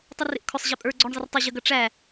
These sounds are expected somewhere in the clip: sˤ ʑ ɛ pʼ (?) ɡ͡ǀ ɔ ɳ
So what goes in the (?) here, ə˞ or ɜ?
ə˞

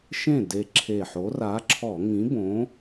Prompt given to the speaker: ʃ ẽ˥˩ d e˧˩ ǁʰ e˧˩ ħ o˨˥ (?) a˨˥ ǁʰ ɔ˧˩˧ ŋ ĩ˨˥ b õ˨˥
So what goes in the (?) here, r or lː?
r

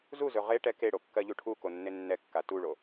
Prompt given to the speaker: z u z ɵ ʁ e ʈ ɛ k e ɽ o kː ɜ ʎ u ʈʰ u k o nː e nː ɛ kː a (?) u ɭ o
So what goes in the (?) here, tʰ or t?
t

